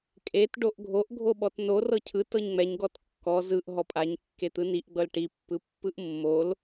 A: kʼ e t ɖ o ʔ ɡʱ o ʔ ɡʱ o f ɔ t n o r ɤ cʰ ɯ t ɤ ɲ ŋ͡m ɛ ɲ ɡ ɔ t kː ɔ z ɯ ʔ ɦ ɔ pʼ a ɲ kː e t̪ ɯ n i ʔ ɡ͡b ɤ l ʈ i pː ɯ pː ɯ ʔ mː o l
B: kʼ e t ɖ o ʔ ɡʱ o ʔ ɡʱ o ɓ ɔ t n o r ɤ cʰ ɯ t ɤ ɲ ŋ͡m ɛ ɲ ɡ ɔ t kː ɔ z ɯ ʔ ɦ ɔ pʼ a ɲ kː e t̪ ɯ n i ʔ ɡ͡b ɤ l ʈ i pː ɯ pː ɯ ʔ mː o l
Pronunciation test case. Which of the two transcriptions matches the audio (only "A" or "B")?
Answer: B